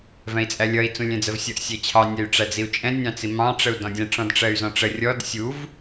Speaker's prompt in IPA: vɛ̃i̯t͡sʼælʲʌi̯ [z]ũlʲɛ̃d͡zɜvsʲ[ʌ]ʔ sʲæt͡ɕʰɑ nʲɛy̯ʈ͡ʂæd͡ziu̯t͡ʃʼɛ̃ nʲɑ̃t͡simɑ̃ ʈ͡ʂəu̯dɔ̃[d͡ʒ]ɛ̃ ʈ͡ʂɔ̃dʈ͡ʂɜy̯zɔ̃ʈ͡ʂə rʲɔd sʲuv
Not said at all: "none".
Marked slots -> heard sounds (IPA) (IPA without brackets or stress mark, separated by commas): t͡s, ʌ, dʲ